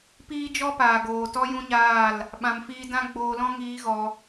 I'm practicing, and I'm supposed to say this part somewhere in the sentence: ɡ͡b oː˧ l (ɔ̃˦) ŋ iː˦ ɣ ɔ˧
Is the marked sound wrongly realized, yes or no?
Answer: no